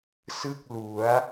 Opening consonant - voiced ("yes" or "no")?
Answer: no